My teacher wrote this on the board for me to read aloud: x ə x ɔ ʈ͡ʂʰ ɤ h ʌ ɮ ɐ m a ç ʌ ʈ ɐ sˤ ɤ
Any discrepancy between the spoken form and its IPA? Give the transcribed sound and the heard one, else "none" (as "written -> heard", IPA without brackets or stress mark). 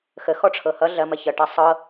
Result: a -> ɐ